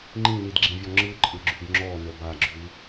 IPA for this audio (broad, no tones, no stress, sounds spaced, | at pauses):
ŋ͡ǃ ĩ n i d ɡ͡ǁ ĩ vʲ ɔ ŋ͡ǁ ɯ ǃʼ ɯ ɡ͡ǁ y ɡ ŋ͡ǁ ɔ n ə b a ɡ͡ǁ y